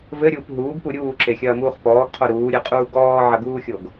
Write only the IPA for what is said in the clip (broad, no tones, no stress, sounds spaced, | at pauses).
v ɘ ɾʲ uː p ɦ uː ɡ p u ɾʲ uː ǁ e xʲ ɐː m uː χ p ɔː ɡ qʰ o ɾ uː ɾʲ ɨ qʼ uː ɡ ɔː ʕ ɐ ɡ uː xʲ o ɡ